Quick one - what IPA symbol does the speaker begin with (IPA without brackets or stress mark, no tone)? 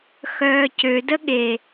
x